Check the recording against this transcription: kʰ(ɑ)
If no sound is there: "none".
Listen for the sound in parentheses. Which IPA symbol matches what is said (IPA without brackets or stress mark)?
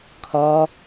ɒ